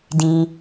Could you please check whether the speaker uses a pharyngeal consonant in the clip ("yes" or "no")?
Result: no